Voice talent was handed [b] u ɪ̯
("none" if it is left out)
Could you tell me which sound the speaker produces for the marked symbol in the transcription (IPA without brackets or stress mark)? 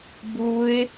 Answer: b